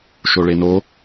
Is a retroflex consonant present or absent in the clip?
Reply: present